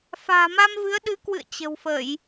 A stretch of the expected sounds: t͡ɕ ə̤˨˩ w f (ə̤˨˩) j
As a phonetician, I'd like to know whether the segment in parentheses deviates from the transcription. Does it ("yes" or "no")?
yes